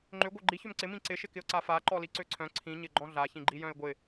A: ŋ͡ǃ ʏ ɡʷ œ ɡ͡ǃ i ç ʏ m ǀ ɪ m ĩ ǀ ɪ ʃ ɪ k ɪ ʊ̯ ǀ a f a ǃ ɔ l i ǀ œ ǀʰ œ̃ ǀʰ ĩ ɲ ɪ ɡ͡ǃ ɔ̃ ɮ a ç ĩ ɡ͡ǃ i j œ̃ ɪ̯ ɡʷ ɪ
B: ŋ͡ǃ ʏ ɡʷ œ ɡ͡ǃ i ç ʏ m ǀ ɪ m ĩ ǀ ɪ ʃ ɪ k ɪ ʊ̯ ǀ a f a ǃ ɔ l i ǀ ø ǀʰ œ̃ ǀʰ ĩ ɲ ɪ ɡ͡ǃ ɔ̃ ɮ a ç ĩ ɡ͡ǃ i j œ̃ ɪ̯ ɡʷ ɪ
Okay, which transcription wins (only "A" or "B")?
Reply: B